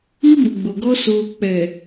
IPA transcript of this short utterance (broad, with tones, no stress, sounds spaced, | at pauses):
i˦ b ʊ˨ ɡ͡b o˨ ɡ ɔ˦ s oː˨ k͡p ɛ˨